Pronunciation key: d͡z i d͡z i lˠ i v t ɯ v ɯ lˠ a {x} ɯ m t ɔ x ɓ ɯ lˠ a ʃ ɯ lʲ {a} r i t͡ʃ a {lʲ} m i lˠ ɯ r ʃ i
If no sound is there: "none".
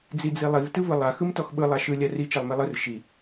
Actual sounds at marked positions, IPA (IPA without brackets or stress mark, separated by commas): x, a, lˠ